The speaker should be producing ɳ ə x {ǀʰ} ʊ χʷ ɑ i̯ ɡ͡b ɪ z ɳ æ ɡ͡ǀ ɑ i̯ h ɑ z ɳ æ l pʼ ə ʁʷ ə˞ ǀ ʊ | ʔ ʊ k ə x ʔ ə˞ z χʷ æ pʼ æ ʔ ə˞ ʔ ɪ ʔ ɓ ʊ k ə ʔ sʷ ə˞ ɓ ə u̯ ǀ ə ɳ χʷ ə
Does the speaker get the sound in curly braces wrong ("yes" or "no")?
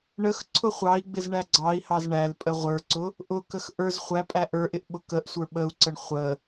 no